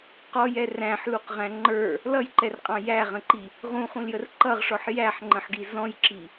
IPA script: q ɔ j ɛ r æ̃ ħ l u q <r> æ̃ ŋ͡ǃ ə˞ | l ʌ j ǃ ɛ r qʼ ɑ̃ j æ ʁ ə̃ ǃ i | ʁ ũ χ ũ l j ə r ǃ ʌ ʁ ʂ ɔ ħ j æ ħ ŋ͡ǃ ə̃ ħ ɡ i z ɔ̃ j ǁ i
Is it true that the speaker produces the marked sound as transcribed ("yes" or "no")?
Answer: no